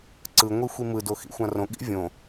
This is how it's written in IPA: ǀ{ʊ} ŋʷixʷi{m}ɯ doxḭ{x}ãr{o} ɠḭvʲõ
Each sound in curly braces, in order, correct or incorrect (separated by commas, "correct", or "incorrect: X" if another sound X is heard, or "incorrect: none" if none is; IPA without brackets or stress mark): incorrect: ɯ, correct, incorrect: xʷ, incorrect: õ